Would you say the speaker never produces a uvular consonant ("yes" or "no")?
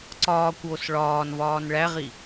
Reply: no